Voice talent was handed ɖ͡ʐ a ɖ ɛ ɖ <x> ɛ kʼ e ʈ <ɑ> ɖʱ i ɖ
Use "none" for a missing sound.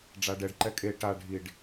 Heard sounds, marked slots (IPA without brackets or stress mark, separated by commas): ǃ, a